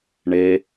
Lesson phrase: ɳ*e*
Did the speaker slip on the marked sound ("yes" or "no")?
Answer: no